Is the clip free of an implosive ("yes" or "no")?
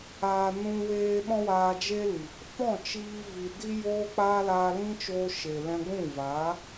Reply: no